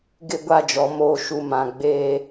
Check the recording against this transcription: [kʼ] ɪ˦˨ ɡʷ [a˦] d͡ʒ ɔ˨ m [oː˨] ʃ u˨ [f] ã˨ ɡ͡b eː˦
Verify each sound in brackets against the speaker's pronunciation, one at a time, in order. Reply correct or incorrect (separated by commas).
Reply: incorrect, incorrect, correct, incorrect